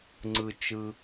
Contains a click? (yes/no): yes